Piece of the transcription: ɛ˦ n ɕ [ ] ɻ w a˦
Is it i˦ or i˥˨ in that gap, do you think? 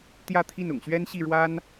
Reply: i˥˨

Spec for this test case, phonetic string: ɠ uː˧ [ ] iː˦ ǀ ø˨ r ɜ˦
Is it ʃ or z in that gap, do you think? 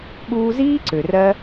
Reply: z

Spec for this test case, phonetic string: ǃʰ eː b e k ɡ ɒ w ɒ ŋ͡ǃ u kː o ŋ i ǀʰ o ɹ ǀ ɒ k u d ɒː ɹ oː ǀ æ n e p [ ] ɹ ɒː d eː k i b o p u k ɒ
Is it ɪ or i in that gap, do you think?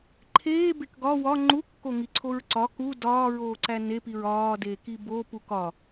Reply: i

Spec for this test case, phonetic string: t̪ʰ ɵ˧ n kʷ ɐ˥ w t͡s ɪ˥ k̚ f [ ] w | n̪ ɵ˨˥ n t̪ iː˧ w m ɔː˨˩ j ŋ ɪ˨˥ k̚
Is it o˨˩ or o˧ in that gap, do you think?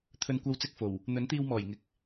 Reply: o˨˩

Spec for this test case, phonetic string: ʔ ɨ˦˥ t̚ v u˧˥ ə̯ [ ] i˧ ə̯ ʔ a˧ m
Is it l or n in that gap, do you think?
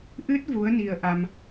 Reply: n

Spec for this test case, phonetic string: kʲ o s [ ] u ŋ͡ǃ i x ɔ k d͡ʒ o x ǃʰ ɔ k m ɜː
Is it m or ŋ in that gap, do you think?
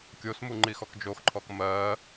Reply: m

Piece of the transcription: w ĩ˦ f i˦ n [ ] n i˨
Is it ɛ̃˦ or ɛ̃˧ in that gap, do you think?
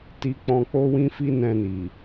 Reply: ɛ̃˧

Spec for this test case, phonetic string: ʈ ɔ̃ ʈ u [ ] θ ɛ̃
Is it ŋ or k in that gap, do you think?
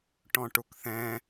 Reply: k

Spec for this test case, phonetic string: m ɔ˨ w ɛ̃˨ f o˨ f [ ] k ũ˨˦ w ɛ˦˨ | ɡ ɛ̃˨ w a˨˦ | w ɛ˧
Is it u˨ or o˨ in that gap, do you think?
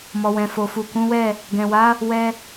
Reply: u˨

